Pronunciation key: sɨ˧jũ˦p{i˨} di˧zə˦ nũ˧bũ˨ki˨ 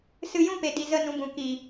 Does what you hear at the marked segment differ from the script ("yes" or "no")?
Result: yes